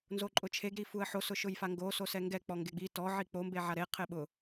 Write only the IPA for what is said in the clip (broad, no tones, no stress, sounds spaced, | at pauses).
n z o ǃʼ ʊ t͡ʃʰ e ɡ ɾ i f u ə̯ ħ o s ʊ ʃ ʊ j f a ŋ ɡ o s o s ɛ ŋ ɡ ɛ k͡p ɔ ŋ ɡ e ɡ͡b i t ɔ ʕ i k͡p o m b e ʕ a ɾ e qʰ ɪ ɓ ʊ